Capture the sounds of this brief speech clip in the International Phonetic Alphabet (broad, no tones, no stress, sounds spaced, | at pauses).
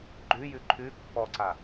ɡ͡ǃ ʉ j ʉ ǃʰ ʉ pː ɔ ǀ a